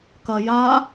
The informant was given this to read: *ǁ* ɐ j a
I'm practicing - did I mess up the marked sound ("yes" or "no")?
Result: yes